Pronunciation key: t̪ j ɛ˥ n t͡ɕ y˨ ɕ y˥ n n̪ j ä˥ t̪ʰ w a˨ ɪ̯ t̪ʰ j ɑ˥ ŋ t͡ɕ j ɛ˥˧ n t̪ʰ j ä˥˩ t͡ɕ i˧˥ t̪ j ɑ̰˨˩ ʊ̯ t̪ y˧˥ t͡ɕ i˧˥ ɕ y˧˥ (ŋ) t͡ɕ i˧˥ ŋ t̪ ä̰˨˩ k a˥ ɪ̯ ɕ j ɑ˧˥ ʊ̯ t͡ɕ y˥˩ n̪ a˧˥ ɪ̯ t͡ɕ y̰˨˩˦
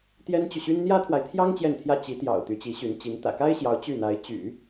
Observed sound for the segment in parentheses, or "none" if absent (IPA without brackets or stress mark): n